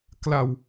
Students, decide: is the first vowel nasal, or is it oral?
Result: oral